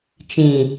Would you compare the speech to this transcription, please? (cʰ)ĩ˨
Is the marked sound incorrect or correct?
incorrect